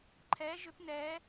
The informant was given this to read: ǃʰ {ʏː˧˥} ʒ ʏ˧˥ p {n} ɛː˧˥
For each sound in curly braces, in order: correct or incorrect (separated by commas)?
incorrect, correct